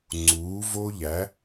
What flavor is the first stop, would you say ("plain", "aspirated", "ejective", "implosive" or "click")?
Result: click